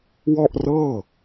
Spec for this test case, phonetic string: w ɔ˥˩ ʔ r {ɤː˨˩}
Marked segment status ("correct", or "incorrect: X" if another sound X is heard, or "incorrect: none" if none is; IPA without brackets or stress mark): incorrect: ɤː˥˩